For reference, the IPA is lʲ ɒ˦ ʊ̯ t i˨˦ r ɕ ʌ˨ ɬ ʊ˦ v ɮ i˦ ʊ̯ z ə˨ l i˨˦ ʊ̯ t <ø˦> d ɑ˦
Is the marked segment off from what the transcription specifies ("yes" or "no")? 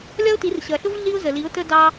yes